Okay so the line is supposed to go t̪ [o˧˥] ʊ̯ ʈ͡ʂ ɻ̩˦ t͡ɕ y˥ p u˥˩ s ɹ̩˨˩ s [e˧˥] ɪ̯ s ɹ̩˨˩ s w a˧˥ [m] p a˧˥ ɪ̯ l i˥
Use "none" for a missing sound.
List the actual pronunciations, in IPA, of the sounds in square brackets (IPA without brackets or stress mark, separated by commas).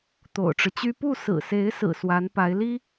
o̰˨˩, e˧˥, n